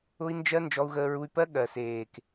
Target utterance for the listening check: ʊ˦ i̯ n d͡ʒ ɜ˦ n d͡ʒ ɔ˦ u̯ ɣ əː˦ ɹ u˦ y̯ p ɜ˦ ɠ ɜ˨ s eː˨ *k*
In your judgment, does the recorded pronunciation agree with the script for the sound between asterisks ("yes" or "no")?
yes